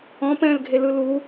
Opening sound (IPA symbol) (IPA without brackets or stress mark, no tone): ɔ̃